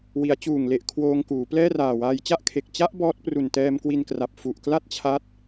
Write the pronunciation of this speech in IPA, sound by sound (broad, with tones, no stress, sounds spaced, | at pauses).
w i˩˦ a̯ t͡ɕ uː˨˩ ŋ l e˨˩ ʔ kʰ w oː˧ ŋ k uː˩˦ p l ɛː˥˩ r aː˨˩ w aː˧ j t͡ɕ a˥˩ ʔ kʰ e˨˩ k̚ t͡ɕ a˦˥ ʔ b ɔː˦˥ t̚ p r u˨˩ n t ɛː˧ m k w i˧ n k r a˨˩ p̚ f u˨˩ ʔ k l a˥˩ t̚ t͡ɕʰ a˦˥ t̚